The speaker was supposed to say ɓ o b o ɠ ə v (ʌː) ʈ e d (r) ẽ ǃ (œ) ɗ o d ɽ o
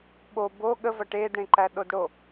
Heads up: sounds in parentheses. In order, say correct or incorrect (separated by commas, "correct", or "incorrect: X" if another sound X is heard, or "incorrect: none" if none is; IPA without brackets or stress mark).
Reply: incorrect: ʌ, incorrect: ɽ, incorrect: æ